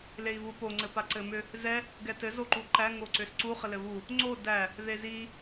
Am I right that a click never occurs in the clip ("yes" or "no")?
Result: no